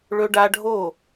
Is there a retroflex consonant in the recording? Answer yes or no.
yes